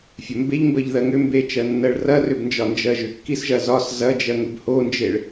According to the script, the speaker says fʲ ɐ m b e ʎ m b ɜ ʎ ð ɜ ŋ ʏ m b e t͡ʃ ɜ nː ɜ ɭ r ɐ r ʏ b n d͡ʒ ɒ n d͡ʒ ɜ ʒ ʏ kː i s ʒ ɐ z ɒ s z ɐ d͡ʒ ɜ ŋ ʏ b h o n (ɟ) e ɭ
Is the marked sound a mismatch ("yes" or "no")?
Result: yes